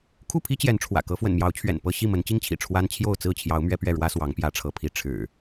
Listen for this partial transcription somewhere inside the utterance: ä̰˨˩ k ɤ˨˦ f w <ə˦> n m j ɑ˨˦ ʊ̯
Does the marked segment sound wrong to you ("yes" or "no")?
yes